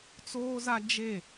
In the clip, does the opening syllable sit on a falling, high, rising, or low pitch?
high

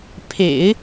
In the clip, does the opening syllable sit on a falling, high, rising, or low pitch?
low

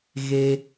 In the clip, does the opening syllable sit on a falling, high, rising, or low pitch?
low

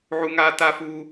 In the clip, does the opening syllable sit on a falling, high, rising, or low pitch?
high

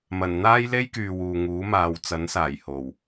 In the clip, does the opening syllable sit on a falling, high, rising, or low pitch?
low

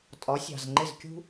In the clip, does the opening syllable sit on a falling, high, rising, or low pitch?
rising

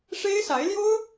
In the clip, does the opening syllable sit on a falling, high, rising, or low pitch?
high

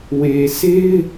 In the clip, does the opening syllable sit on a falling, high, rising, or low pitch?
low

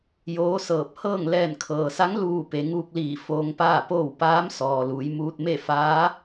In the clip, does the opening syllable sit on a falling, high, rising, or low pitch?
rising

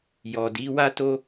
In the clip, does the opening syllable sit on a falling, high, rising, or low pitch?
low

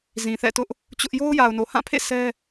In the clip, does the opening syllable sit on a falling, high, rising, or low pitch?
low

